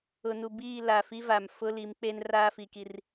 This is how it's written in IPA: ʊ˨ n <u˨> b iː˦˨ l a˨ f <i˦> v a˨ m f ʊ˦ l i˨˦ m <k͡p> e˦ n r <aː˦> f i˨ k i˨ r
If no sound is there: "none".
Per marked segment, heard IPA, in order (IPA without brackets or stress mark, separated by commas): u˨, i˦, k͡p, aː˦